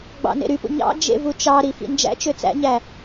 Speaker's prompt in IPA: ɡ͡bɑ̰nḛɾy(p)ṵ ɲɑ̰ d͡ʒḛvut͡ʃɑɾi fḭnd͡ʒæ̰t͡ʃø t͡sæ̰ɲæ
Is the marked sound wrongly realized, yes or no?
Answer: no